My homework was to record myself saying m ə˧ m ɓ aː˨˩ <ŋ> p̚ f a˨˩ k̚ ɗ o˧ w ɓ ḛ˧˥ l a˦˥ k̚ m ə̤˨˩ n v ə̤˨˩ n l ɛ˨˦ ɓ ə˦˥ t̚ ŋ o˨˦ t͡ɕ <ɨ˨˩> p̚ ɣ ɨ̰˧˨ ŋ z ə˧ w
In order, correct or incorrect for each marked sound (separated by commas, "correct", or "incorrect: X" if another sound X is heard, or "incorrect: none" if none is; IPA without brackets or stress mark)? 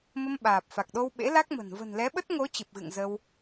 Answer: incorrect: none, correct